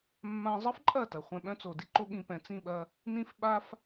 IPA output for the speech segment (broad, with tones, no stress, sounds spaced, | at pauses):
mː ã˧ zˤ ə˦ f ǃʼ ɐ˦˨ t ɐ˨ χʷ ɛ̃˧ ɓ œ̃˦ t͡s o˨ d i˦ ǃ o˦ ɠ ĩ˧ p ɛ̃˨ t͡s ĩ˦˨ ɓ ɐ˧ | n ĩ˦ f ɓ a˦ f